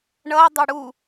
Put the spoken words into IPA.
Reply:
ɳ ʌ dˤ œ ɽ u

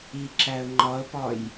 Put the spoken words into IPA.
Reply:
i ǁ æ ə̯ ŋ͡ǃ ɒ ə̯ p ɒ j

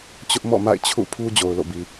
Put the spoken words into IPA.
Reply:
t͡ɕ ʊ˦ ʔ m ɔ̰˦˨ m a̰˦˨ ɪ̯ t͡ɕʰ ṵ˦˨ pʰ u˦ d͡ʑ o˨ ʊ̯ l o̰˦˨ b i˨

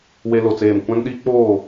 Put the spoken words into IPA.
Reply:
w e˦ l o˨ t͡s eː˦˨ m kʷ ã˦ n ɗ iː˦ k͡p oː˦˨

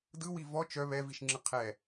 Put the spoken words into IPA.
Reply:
d ɯ w i v ɔ t͡ʃ œ β ɛ v i ʃ ŋ͡ǁ ɯ qʰ ɛ

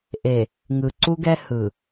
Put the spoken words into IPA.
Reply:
ʔ e˨ | ŋ ɯ˨ ǀ u˦ ɡ ɛ˦ h ɯ˨

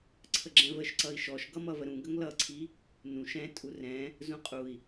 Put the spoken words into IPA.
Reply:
ǀʰ ə ɡ͡ǁ ɛ̃ v ə ʃ ǀ ʌ i̯ ʃ ɔ ʃ ɡ ʌ m ʌ v ə ɾ ũ ɡ ə ŋ l ʌ ǀʰ i | n ũ ʃ ɛ̃ tʼ u r ɛ̃ | z ũ qʼ u i̯

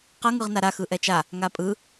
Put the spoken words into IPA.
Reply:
q ʌ ŋ ɯ ʁ n a ɾ a x ɯ ʔ ɛ t͡ʃ a | ŋ a pʼ ɯ

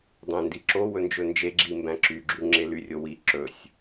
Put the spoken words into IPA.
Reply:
dˤ ẽ n d i ǁ o w ɵ n d͡ʒ ɵ n d͡ʒ e ɡ͡ǁ i m b æ̃ ǁ y ɡ͡ǁ y ŋ͡ǁ e l y rʲ o w i ǁ ɵ sʲ

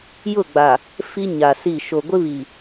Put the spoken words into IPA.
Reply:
j ʊ˦˨ ɡ͡b a˨ | f i˦ ɲ a˨ s i˦˨ ʃ o˨ ɡʷ ɪ˦ β i˨

